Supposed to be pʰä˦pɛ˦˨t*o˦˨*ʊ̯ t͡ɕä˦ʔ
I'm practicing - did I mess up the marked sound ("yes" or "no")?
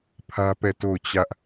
no